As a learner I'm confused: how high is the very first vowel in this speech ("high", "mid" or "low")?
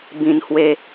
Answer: high